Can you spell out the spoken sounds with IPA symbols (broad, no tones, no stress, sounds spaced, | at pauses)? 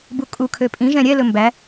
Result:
b u kʼ u kʰ ø pʼ ĩ ʒ ɛ̃ ɾʲ ɛ l ɵ m b æ